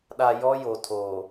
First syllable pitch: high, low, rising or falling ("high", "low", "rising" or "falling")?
low